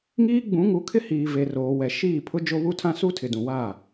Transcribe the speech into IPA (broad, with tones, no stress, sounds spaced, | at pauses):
ŋ iː˦ ɡ͡b ũ˨˦ ŋ u˨˦ kʰ ɪ˦ h iː˨ v e˨ r oː˨ w ɛ˨ ʃ iː˦˨ pʰ ʊ˦ d͡ʒ o˦ β u˦ tʰ ã˦ s u˦ tʰ ɪ˨ d ũ˨ w aː˦˨